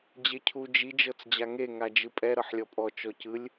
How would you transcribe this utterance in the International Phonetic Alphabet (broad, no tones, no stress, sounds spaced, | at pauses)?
d͡ʑ e cʰ u d͡ʒ i d͡ʒ ɤ t͡s d͡ʑ a ŋ e ŋ a d͡ʒ ɯ pʼ ɛ ɾ ɤ ħ lʲ ɔ pʼ ɔ t͡ʃ ɔ c ɯ lʲ